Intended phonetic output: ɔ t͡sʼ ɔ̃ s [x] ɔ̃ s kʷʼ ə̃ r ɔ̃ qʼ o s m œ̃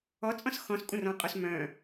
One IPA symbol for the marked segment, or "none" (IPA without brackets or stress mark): x